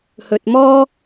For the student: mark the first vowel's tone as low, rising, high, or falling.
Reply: low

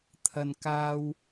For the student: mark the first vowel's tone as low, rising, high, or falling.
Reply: low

